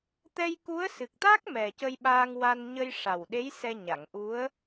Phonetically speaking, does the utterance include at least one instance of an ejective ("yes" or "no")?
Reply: no